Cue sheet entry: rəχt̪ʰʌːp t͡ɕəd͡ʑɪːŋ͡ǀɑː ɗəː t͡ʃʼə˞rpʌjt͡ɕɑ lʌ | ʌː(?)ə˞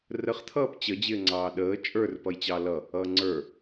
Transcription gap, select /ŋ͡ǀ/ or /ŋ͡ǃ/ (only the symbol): ŋ͡ǀ